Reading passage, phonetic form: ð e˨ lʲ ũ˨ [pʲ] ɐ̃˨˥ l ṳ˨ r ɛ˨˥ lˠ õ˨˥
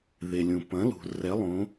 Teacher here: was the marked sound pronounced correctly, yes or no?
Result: no